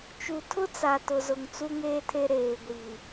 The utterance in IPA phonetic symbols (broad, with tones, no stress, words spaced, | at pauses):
t͡ʃu˨tʰʊ˦t͡sa˨ tʊ˨zʊ˨ŋ t͡su˦ŋeː˦tʰe˦ ɾeː˨ɡʷi˨